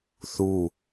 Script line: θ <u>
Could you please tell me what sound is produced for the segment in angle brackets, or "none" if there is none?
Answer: u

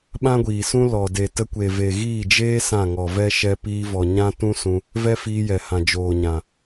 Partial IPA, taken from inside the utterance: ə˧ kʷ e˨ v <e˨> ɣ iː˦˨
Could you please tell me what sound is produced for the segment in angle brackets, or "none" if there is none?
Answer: e˨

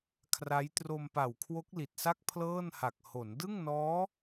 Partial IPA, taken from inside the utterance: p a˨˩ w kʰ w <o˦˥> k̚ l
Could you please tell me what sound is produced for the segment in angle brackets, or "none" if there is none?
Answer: o˦˥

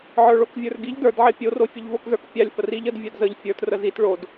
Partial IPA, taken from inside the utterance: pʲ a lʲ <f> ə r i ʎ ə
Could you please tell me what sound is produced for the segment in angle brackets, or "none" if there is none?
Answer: f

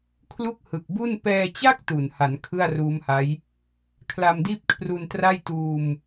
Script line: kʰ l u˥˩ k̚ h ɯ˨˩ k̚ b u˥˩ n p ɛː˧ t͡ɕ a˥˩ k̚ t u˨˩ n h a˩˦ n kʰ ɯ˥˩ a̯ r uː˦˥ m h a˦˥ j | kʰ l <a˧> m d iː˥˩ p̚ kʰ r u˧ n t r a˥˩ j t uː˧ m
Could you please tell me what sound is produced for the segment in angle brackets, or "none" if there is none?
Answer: a˧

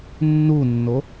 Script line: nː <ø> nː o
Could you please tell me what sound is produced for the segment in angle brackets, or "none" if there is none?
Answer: u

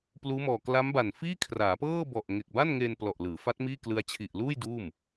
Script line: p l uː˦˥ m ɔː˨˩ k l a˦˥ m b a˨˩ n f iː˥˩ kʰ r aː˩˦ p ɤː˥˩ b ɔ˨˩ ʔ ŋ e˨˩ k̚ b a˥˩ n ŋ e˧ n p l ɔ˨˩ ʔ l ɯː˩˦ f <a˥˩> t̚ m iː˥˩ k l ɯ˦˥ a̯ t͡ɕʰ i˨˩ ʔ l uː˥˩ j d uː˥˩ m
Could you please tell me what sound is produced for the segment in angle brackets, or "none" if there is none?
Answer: a˦˥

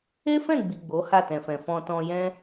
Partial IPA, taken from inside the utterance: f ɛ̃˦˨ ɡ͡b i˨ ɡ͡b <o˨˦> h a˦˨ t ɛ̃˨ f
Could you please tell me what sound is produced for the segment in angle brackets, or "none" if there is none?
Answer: o˨˦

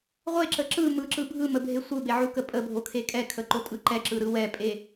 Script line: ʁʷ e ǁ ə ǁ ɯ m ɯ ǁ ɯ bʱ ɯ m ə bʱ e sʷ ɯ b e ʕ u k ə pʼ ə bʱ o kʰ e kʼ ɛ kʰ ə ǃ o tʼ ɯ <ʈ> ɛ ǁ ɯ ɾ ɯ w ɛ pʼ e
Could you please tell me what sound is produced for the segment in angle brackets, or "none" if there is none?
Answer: ǃ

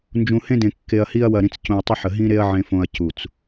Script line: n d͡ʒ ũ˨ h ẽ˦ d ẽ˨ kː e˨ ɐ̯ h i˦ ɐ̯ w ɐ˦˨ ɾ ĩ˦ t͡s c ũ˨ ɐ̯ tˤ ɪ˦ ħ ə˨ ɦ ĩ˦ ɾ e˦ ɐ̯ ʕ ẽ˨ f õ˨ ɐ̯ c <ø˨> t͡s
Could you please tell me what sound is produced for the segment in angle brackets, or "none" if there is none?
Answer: u˨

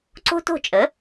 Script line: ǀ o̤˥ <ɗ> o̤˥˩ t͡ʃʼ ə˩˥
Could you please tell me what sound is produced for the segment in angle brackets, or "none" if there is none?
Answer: t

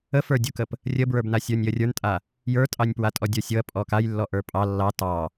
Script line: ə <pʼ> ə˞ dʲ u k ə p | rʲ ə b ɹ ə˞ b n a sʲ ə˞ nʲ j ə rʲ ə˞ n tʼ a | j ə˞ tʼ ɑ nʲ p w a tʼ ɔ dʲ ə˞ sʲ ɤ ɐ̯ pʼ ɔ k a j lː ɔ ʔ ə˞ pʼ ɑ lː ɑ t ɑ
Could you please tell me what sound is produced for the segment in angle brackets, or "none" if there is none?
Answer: f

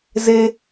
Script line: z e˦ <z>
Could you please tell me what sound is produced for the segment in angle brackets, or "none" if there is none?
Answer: none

